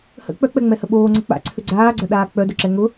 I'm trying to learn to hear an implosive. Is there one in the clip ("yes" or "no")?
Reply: yes